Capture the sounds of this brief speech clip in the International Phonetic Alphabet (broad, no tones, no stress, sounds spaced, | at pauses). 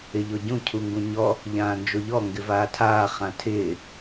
ɪ ʎ o ɟ ũ cʰ u ŋ ɡ ũ ɲ ɔ | ʎ ãː n d͡ʒ o ʎ ɔ ŋ ɡ ɪ v aː tʰ aː χ ã tʰ ɪː